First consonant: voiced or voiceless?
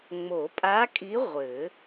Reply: voiced